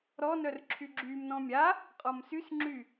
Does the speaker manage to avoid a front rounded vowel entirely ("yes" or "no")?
no